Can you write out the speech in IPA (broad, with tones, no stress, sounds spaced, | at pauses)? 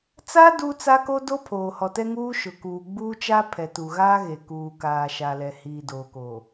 t͡s aː˦ d uː˦ t͡s a˦ k o˦ d o˦ pʰ oː˨ h ɔ˨ t ɛ˦ ŋ uː˦ ʃ ʊ˨ k uː˨ ɡ͡b uː˦ t͡ʃ a˦ pʰ ɛ˨ t u˨ ɣ aː˦ ɣ e˨ k uː˨ k aː˨ ʃ a˨ l ɛ˨ h iː˨ d oː˨ k oː˨